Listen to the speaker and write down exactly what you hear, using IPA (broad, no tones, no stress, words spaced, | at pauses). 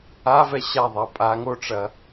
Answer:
avɛ ɕa ðˤapʼa ŋoʈ͡ʂɐ